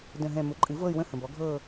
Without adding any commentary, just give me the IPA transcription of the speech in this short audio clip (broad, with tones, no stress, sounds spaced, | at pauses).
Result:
d ə̃˦˨ ɦ ɛ̃˦˨ m ʊ˩˥ ǃʼ ɨ˩˥ v ɤ˦˨ y̯ w ə̃˦˨ h ə̃˨ b ɔ˩˥ ɡʱ ɤː˦˨